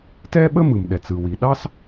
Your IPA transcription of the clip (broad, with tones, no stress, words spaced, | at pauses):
tɛ˥ɓə˥ mɯ˩mɗɛ˩t͡sɯ˩ wi˩ɗɑ˥s